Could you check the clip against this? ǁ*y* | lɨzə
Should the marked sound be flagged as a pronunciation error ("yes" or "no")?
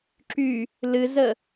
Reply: no